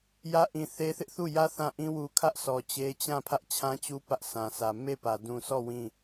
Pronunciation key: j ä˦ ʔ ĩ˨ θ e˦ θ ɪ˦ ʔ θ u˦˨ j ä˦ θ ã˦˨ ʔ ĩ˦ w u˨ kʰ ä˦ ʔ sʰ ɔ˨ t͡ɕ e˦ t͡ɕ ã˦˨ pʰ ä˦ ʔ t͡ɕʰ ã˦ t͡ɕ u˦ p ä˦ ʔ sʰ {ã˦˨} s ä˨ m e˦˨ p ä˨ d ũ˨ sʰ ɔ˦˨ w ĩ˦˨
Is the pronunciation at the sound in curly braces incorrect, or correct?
incorrect